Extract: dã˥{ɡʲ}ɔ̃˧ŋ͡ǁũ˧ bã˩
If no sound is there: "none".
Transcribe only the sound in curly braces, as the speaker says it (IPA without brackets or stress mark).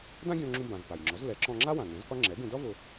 ɡʲ